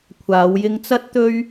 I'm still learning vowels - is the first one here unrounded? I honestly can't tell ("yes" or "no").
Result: yes